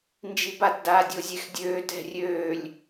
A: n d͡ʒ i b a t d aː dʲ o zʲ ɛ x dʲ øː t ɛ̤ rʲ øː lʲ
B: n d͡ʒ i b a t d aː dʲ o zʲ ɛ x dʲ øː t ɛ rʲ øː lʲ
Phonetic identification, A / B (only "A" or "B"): A